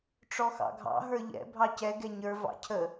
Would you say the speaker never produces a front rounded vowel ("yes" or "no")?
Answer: yes